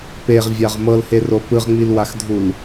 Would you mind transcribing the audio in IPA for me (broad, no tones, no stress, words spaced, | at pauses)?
peʁvʲaʁ mɤlhero pɯʁŋ͡milwaxdʱul